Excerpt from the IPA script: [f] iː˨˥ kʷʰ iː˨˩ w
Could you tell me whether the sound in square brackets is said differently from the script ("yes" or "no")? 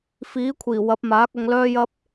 no